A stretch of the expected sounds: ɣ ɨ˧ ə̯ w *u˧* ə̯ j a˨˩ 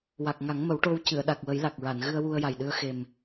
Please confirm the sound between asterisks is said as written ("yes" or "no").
yes